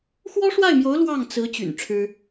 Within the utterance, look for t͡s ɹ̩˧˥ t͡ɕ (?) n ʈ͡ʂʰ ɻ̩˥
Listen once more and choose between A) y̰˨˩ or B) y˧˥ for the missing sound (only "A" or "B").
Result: A